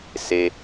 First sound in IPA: s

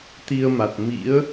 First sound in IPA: t̪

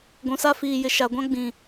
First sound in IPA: ɡʷ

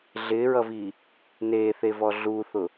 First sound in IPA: ɮ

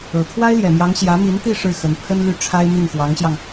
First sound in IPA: ɤ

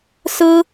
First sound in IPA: s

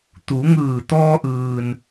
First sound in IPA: t̪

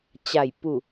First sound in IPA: t͡ɕ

